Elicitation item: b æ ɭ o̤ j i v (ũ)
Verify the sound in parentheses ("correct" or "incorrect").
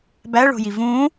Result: correct